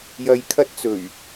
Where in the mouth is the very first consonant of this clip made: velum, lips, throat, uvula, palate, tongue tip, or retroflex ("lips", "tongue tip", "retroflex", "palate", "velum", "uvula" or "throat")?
palate